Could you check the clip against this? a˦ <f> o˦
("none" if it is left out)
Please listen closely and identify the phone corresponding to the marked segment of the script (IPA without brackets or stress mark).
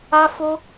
f